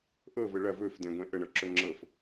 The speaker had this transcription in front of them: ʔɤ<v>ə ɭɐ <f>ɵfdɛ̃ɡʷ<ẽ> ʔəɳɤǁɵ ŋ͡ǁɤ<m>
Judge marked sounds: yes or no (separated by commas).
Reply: yes, no, no, no